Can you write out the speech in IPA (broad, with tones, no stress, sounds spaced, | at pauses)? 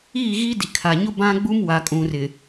i˦˨ ɣ i˦ d i˨ kʰ a˨ ɲ ʊ˦ b ã˦ ɡ͡b u˦ m w a˨ kʼ ũ˨ r ɪ˨